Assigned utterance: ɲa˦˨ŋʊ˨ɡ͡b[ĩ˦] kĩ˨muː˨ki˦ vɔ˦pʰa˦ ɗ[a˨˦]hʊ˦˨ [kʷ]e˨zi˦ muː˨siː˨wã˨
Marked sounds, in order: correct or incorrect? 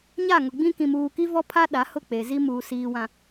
correct, correct, incorrect: k͡p

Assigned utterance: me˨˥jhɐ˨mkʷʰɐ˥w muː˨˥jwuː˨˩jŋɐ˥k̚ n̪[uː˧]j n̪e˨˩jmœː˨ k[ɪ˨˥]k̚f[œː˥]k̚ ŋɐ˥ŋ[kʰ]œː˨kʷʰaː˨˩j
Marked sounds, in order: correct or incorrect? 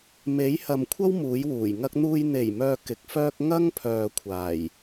correct, correct, correct, incorrect: pʰ

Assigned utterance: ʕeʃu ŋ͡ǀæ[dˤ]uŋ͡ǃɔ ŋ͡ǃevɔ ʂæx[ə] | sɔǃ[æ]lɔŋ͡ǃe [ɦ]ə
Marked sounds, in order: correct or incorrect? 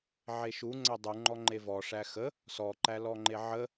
correct, correct, correct, incorrect: ʕ

